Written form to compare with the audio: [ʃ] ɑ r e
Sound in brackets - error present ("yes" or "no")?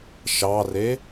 no